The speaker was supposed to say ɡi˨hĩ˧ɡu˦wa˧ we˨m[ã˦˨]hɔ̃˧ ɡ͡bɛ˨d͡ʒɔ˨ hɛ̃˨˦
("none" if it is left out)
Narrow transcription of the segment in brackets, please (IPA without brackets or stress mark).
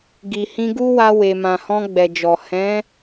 ã˨